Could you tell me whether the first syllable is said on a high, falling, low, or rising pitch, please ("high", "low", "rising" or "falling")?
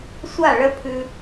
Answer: falling